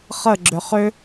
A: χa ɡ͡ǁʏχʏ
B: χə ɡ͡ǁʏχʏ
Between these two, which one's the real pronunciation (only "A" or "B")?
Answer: B